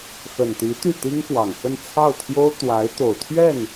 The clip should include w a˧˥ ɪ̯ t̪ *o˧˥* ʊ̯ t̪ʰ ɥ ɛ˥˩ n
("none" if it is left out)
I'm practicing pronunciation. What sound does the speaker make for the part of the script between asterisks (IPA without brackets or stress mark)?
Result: o˨˩